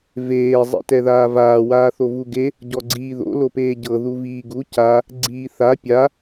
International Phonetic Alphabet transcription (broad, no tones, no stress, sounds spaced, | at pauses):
v eː zˤ ḭ t ɛ ð aː v aː w aː θ o v u ɡ e | ɟ ɔ ɡ͡ǀ iː ð o̰ l o p eː ɟ ɤ ð u v iː ɡ u c a | ɡ͡ǀ iː θ a pʲ a